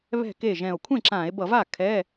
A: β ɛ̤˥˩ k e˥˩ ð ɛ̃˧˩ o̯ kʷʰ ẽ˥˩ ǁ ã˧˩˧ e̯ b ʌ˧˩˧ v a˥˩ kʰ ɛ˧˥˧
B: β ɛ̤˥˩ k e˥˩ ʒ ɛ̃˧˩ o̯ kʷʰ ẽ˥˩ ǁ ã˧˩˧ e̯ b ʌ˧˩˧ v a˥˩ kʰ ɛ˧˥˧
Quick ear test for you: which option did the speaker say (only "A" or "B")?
B